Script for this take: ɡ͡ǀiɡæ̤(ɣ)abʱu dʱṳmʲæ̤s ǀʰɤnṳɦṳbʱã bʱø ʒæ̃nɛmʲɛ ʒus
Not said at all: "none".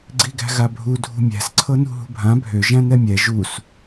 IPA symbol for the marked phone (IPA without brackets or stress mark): ɣ